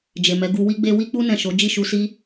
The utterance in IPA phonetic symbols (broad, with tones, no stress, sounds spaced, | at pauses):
d͡ʒ e˨ m ɛ˨˦ ɡ u˧ w i˦ ɡ͡b e˦ w i˦ k͡p u˦ n ɛ̃˦˨ ʃ o˨˦ d͡ʒ i˦˨ ʃ u˧ s i˦